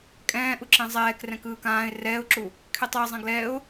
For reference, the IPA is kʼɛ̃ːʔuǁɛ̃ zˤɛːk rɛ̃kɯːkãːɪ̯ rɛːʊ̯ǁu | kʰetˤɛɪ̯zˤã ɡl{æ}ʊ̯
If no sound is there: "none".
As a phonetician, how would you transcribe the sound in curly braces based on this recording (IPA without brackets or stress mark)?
ɛ